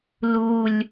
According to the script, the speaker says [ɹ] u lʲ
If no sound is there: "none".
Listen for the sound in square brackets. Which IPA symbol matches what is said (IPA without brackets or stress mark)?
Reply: l